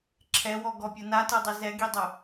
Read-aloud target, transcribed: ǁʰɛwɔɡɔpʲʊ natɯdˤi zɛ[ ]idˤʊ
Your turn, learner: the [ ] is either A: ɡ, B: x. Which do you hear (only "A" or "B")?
A